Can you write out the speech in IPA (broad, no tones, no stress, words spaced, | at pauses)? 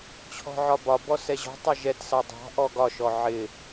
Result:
t͡ɕʰɔ̤ʕɒbɒbɔ sɛʑɔ̤ tˤɛʒɛtsɑ dˤɑ̤ ʔɔɡɒʃɔ ʕɪ